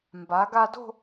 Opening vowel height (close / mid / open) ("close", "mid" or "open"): open